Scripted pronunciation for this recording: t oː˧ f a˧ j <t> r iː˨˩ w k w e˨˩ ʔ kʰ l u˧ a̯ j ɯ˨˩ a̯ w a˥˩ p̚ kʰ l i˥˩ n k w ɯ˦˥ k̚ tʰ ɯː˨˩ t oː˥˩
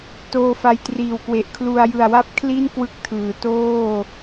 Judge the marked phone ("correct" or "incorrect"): correct